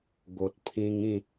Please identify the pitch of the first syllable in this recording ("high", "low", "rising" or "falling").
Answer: low